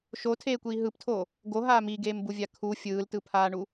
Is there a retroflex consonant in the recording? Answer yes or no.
yes